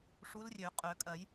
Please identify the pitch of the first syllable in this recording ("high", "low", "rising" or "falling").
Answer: rising